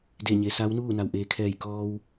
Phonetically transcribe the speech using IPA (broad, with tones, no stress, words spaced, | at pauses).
de˧˩ɲe˩sa˧˥wnuː˥˨ na˩wʔeː˩kʰɛː˧˩jkɔː˧w